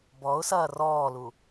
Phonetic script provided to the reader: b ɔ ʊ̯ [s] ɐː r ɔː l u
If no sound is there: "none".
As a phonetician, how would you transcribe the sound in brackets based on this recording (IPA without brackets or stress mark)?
s